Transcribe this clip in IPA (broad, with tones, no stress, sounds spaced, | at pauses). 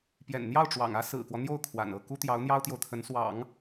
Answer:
p j ɛ̰˨˩ n n̪ j ɑ˥˩ ʊ̯ ʈ͡ʂ w ɑ̰˨˩ ŋ ä˥ s ɹ̩˨˩ k w ɔ˦ n̪ j o˥˩ ʊ̯ kʰ w a̰˨˩ n ɤ˥˩ k u˥ t̪ j ɑ˧˥ ʊ̯ n̪ j ɑ˥ ʊ̯ t̪ j o˨ ʊ̯ t̪ʰ ə˧˥ n s w ɑ̰˨˩˦ ŋ